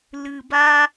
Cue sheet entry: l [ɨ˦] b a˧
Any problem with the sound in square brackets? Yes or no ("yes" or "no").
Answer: yes